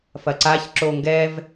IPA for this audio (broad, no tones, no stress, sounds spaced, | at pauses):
f ɐ ǀ a ç ǁ o ŋ ɡ ɛ v